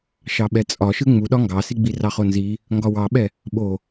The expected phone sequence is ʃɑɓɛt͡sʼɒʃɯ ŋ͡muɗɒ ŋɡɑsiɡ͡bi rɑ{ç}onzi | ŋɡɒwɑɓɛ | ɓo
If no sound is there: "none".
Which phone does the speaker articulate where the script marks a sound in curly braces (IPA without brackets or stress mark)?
χ